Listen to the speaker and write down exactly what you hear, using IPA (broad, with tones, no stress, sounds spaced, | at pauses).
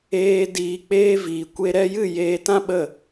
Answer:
eː˧ d iː˨ k͡p eː˧ v iː˨ kʷ e˧ ɾ ɛ˧ j ɨ˦˨ j eː˧ t ã˦ ɓ ə˦˨